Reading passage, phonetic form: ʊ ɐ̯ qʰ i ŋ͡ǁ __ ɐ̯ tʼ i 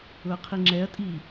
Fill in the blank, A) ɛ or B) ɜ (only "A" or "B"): A